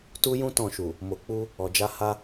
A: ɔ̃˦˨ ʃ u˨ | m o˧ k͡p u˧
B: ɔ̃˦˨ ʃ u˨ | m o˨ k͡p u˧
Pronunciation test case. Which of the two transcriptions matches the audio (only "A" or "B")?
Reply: B